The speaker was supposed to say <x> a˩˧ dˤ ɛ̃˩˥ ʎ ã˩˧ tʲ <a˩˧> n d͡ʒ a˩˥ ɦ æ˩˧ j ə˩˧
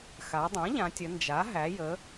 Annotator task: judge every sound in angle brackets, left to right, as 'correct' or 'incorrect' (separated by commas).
correct, incorrect